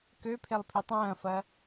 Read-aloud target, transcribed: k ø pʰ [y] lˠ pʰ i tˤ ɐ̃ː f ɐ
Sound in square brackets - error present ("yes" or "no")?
yes